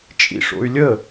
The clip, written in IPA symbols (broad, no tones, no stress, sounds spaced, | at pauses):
t͡ʃʼ ḭ ʂ o̰ y̯ lʲ ə